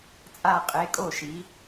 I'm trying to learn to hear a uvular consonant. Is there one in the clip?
yes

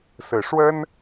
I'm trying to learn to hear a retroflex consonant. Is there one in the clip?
yes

